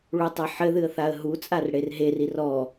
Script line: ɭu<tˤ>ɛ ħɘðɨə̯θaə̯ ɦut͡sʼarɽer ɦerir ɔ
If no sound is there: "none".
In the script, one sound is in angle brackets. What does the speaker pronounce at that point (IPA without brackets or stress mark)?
tˤ